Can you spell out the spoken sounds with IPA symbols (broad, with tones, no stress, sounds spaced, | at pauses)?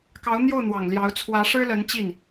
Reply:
k ɑ˧˥ ʊ̯ n̪ j o˥˩ ʊ̯ n̪ w ɑ˨˩ ŋ l j ɑ˧˥ ʊ̯ t͡sʰ w ä˧˥ ʂ ɻ̩˥ l ə˧˥ n t͡ɕ i˥˩ n